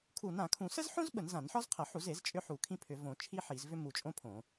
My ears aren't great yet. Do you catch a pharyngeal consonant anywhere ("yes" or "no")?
yes